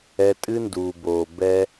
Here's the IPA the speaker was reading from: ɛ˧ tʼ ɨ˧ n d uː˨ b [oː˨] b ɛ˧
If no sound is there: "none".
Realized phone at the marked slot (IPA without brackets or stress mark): oː˨